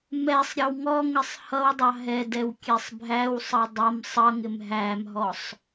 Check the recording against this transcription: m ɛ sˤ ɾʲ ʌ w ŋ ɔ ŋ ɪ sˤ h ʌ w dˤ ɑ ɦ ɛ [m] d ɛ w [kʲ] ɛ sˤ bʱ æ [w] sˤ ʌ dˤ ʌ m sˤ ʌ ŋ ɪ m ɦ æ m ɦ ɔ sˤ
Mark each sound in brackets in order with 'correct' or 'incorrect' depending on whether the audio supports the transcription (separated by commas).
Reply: incorrect, correct, correct